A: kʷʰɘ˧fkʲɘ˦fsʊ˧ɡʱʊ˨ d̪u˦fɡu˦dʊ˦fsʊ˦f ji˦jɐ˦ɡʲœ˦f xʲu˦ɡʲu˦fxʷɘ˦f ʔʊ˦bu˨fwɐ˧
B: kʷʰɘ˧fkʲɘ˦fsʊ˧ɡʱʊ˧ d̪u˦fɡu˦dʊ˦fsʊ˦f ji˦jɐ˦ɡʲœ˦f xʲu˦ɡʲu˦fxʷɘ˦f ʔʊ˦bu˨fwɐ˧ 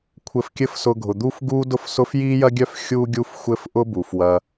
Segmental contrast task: A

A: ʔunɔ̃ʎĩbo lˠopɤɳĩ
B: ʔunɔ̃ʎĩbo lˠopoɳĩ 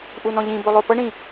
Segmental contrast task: A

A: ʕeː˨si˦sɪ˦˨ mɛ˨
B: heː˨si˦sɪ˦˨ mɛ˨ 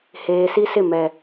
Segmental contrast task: B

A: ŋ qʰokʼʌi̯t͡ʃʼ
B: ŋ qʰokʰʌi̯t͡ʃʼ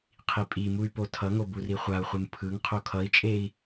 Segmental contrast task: B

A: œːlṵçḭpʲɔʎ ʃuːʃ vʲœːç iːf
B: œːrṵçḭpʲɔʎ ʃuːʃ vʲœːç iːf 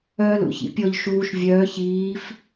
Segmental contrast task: A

